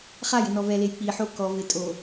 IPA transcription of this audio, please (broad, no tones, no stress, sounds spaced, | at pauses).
χ a j ɪ n ɔ v ɛ l e j k͡p i ħ o k ɔ v ɪ tʼ o